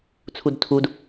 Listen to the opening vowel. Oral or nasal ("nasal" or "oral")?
oral